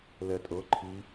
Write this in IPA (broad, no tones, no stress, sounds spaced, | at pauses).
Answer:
l ɛ tʼ ɤ ǃʰ i